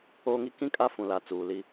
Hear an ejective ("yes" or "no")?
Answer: yes